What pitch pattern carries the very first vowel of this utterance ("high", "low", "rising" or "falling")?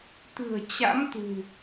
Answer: low